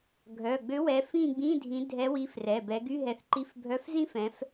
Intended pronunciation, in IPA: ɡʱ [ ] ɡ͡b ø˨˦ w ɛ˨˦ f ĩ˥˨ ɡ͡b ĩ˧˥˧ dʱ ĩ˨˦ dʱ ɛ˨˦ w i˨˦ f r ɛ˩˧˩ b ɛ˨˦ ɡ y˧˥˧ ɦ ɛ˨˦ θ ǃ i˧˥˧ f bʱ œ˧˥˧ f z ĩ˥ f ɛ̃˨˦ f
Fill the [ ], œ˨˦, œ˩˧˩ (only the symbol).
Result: œ˩˧˩